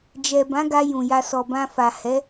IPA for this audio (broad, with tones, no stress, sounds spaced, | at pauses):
d͡ʒ ɛ˨ b ã˨˦ ɡ a˧ j ũ˨ j a˧ s ɔ˨ b ã˧ f a˨ h ɛ˨˦